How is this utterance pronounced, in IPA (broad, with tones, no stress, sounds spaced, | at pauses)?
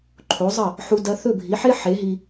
ǃʰ o˩˥ zˤ ɐ˥˩ | ħ u˧ d ɐ˧ θ ɵ˥˩ bʱ i˩˥ ħ e˥ ħ e˩˥ ɦ i˧